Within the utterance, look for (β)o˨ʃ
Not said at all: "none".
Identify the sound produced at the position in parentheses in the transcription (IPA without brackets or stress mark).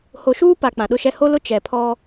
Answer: h